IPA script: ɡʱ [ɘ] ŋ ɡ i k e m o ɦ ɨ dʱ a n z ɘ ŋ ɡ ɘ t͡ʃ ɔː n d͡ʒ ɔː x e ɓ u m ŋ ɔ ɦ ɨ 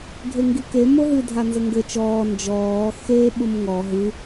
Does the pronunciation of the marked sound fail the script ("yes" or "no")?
yes